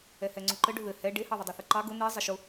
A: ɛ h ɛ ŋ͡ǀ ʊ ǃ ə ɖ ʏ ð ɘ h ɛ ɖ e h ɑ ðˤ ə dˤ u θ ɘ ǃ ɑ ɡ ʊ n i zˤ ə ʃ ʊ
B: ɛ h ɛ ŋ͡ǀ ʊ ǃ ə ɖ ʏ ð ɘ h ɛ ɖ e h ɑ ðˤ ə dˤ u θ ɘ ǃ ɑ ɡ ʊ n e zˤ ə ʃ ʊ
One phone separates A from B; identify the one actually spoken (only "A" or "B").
A